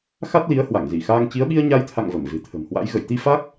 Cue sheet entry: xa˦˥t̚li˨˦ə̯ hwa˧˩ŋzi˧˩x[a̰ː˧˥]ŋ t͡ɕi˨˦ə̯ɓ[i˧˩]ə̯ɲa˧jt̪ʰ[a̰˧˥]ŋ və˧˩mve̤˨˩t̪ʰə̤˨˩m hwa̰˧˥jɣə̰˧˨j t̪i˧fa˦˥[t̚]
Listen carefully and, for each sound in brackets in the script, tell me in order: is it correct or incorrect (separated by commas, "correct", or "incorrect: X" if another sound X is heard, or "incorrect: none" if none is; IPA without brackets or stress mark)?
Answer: incorrect: aː˧, incorrect: i˧, incorrect: a̰˧˨, incorrect: k̚